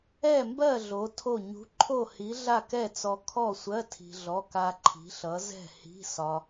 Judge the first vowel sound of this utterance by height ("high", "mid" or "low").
mid